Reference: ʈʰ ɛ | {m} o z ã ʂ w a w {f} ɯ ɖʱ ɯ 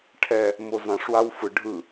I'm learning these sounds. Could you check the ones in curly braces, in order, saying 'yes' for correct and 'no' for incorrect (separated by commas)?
yes, yes